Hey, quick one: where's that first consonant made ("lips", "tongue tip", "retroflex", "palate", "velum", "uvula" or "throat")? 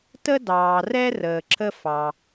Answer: tongue tip